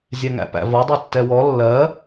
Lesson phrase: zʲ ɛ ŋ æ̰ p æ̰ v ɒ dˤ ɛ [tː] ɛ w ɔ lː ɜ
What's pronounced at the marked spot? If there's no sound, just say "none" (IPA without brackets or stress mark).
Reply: tː